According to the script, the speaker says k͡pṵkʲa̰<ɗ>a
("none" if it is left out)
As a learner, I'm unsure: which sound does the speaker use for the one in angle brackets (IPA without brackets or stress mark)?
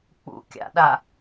ɗ